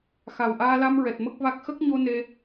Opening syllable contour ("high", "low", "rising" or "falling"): low